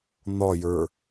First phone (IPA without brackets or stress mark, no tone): n̪